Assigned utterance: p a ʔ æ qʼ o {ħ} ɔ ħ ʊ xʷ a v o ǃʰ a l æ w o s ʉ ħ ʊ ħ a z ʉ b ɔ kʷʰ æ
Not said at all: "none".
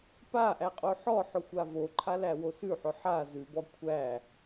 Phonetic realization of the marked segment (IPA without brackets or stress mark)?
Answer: ħ